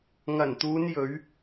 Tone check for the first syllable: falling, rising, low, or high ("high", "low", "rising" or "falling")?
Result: low